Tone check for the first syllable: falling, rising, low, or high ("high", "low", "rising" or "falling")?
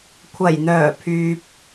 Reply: low